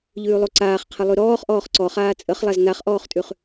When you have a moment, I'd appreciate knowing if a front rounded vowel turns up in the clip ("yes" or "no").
no